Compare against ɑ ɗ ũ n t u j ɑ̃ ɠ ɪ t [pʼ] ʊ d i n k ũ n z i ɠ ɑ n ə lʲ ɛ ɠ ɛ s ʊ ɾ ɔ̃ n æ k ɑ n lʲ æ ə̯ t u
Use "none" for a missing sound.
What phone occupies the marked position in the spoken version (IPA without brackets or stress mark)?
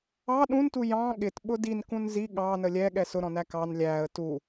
ɓ